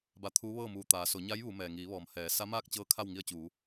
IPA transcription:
b a˧ t̪ʰ uː˧˥ ʋ ɤː˥˨ m uː˧˩ t̪ aː˩˧ s o˩˧ ɲ a˧˥ j ʋ u˩˧ m ɛː˩ ŋ iː˩˧ ʋ ɔː˩ m h ɛː˩˧ s a˧˥ m aː˥˨ k̚ t͡ɕ ɤː˧˥ kʰ a˥˨ w ŋ i˧ ə̯ t͡ɕ uː˩˧

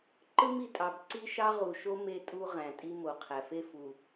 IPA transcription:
ǃ ɯ˦ m i˨ tʼ ɑ˨ b ǀ i˦ ʃ ɑ˦ ʁ u˨ ʃ o˦ m e˦ tʼ u˦ ʁ æ̃˨ tʼ i˦ m o˨ qʰ æ˨ f e˦˨ f u˨

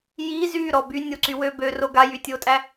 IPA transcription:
j i z y ɾ ɔ b y nʲ o ǀ y w ø b ø r o ɡ a j y tʲ o tʼ æ

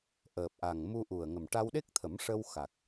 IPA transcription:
ʔ əː˨˩ p̚ ʔ a˨˩ ŋ m u˧ ʔ u˨˩ ə̯ ŋ ə˨˩ m ʈ a˧ w ɗ e˦˥ k̚ t̪ʰ ə˨˩˦ m ʂ ə˧ w x a˨˩ k̚

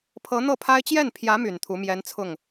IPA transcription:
pʰ ɤ˧˥ n̪ ɤ˥˩ pʰ a˥ ɪ̯ t͡ɕ j ɛ˥˩ n pʰ j ä˧˥ m y˨˩ n t̪ʰ u˧˥ m j ɛ˧˥ n t͡sʰ ʊ˥˩ ŋ

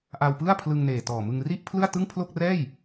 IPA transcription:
ʔ a˧ w p ɯ˥˩ a̯ pʰ l ɯ˧ ŋ n eː˨˩ t ɔː˨˩ m ɯ˧ ŋ r i˥˩ ʔ pʰ l ɯ˥˩ a̯ t ɯ˥˩ ŋ pʰ l o˥˩ k̚ r ɛː˥˩ j

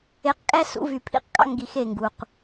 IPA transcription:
e˨ q kʼ æ˦ s ṵ˨˦ v y˨ pʰ ḭ˦ q kʼ ɑ̰˦ ŋ ɡ i˨ x e˦˨ ŋ ɡ u˨ q

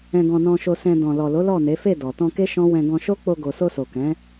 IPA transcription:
ɛ̃˧ ɡ ɔ̃˧ n ɔ̃˧ ʃ o˧ s ɛ̃˧ d ɔ̃˨ l ɔ˨ l o˨˦ l ɔ˦˨ n e˨˦ f e˦˨ d ɔ˨ t ɔ̃˧ k e˦ ʃ ɔ̃˦ w ɛ̃˧ ɡ ɔ̃˧ ʃ o˦ k͡p o˧ ɡ o˨ s o˧ s o˨ k ɛ̃˨˦

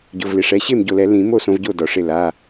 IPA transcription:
ɟ ʊ˩˧˩ v l ɪ˩˧˩ ʂ ɛ˩˧˩ ɕ e˥˩ m ɟ o˧˩ l ɛ˨˩˦ l ĩ˨˩˦ m o˥˩ s õ˨˦ v ɟ o˥˩ d ɔ˩ ʂ ɪ˧˩ l a˩˧˩

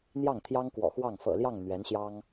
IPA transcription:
n̪ j ɑ˥˩ ŋ t̪ʰ j ɑ˥ ŋ k w ɔ̰˨˩ x w ɑ˥˩ ŋ f ɤ̰˨˩ l j ɑ˥˩ ŋ n̪ ɥ ɛ˧˥ n ɕ j ɑ˥ ŋ

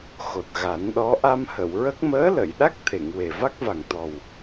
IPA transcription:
x o˨˩ t̚ ɣ a˨˩˦ n ɗ ɔ˧˥ ʔ a˧ m h ə˨˩˨ w ɹ ə˦˥ k̚ m əː˧˥ l ə˨˩˨ j ɗ a˦˥ k̚ t̪ʰ e˨˩˨ ŋ w e˨˩ v a˦˥ k̚ v a˨˩ ŋ t̪ ɔ˨˩ w

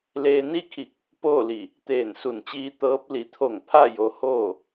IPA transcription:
l eː˧ n i˥˨ kʰ i˧˩ k̚ | p oː˥˨ l i˧˩ | t̪ eː˧˩ n s u˧˩ n t͡ɕ iː˧ t̪ ɤː˧˥ p̚ l i˩˧ t̪ʰ o˧˩ ŋ pʰ a˥˨ j o˧˥ h oː˥˨

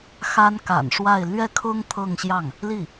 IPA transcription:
x a˥ n k a̰˨˩ n ʂ w a˥˧ ɪ̯ l ɥ ɛ˥˩ kʰ ʊ˥ ŋ t̪ʰ ɤ˥˧ ŋ ɕ j ɑ˥˩ ŋ | l i˥˩

